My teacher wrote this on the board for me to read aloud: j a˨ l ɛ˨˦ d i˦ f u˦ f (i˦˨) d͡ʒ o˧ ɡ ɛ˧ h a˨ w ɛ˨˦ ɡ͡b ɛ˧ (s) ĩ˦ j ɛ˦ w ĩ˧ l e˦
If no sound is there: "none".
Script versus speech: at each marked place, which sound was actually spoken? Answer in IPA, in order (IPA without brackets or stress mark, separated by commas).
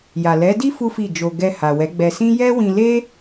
i˦˨, s